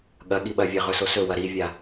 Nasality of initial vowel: oral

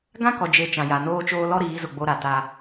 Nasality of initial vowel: nasal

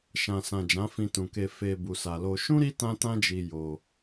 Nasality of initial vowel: nasal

